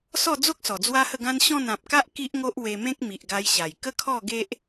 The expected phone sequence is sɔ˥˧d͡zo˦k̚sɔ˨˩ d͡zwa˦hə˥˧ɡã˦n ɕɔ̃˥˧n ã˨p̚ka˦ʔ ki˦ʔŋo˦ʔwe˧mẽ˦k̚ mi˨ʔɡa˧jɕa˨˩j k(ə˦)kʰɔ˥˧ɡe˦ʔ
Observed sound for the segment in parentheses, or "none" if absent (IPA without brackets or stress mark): ə˦